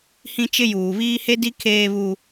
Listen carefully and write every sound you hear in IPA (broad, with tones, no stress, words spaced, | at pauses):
hĩ˦t͡ʃɪ˦ juː˨βiː˦he˦di˦ kʰeː˦βu˦